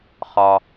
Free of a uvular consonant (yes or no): no